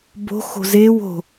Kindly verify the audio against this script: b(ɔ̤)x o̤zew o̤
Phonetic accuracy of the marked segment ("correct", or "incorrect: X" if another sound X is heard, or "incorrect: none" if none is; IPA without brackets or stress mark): incorrect: o̤